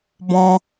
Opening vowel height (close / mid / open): mid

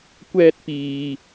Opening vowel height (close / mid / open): mid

